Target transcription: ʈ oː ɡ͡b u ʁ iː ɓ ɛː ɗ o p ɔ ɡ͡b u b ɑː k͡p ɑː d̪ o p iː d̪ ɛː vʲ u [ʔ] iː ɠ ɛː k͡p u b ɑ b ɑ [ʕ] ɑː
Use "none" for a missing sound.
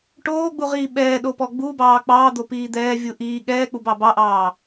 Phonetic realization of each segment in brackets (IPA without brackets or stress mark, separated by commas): ʔ, ʔ